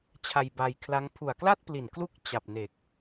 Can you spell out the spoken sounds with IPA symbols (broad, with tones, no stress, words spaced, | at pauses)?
t͡ɕʰa˧jba˧jkʰla˦˥ŋ pʰu˨˩a̯kla˥˩t̚pli˨˩n klu˦˥k̚ t͡ɕa˨˩p̚ne˨˩k̚